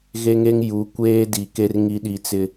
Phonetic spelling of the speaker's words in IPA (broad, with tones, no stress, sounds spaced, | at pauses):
ɣ e˦ ŋ e˦ ŋ j u˨˦ kʷ eː˦ d i˨ k e˦ r ŋ i˦ ɗ i˨ t͡s ɪ˨